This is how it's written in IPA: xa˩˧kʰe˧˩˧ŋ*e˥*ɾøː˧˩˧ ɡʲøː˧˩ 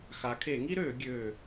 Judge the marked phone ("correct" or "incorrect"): incorrect